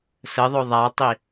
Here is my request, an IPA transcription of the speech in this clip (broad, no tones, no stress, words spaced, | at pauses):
səðˤo ðˤatˤi